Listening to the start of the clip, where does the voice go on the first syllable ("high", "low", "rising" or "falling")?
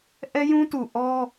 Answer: high